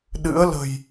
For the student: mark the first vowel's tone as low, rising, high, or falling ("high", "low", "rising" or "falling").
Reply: rising